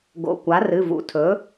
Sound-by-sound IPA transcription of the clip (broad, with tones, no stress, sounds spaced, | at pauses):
ɡ o̰˩˧˩ kʷ a˩˥ r ɨ˩˧˩ v ṵ˩˥ tʰ ɵ˩˥